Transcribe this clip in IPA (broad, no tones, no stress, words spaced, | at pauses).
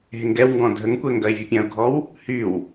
ɦeŋɡɛwŋɡɔ̃ dʱəŋkʷɛ ŋɡɐɪ̯vʲɯpʲɐ̃ʊ̯ɡʱɔw | hyw